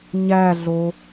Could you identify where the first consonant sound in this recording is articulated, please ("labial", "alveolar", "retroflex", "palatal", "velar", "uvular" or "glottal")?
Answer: palatal